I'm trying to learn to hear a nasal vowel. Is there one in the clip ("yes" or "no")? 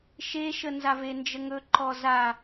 no